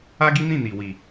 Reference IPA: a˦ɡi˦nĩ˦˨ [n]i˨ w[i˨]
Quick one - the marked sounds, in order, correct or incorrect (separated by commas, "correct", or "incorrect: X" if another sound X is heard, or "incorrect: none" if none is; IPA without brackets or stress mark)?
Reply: correct, correct